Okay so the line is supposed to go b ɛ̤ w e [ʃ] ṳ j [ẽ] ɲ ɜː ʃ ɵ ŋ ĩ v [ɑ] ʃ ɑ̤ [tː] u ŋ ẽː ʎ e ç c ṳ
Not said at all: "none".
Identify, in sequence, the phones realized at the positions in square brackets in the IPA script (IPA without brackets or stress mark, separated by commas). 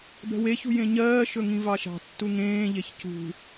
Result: ç, ẽ, ɑ, tː